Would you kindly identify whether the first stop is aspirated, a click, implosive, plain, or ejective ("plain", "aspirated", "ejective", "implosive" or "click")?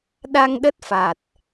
implosive